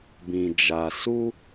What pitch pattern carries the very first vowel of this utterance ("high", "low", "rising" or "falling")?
low